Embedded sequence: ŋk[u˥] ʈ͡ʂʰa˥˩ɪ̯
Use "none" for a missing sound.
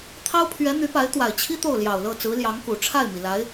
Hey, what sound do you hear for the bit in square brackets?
u˨˩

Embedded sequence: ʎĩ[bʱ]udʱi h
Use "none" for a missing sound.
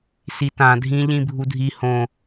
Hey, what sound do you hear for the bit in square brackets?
bʱ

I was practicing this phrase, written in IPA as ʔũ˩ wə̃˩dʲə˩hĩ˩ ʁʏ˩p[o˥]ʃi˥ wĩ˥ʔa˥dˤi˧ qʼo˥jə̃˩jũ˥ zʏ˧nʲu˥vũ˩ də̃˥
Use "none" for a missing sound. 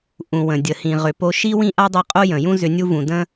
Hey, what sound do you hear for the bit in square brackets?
o˧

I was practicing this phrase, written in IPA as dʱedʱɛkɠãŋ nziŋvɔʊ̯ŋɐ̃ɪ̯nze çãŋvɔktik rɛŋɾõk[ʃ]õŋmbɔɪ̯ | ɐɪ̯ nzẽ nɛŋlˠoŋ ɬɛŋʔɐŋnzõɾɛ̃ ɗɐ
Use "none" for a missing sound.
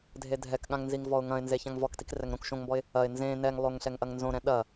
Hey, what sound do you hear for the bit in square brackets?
ʃ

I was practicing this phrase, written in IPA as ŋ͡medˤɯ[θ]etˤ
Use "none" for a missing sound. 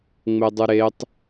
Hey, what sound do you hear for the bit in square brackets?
ɾ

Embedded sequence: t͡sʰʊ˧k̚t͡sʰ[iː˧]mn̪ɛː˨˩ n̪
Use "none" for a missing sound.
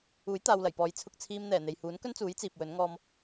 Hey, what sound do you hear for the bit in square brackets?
iː˧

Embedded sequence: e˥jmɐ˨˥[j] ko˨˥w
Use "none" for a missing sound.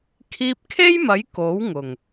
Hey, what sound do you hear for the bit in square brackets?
j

